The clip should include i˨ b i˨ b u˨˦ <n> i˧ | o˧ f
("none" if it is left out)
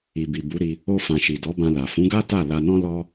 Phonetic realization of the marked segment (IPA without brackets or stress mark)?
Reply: ɾ